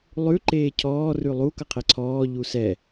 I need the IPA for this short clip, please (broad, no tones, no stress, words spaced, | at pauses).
lˠʉ ǃeːcʰɔː rʉlˠu kʌqʰeǀʰɔː ʎusɛ